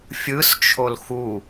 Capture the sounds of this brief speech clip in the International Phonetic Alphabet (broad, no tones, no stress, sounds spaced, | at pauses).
fʲ ɯ s t͡ʃʰ o l x u